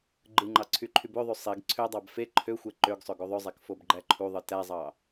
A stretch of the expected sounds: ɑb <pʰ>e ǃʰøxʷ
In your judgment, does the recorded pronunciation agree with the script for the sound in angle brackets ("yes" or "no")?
no